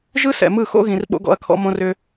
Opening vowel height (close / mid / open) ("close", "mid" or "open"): close